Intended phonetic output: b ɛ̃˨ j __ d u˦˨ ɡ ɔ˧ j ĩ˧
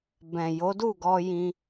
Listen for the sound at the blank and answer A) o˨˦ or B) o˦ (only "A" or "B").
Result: A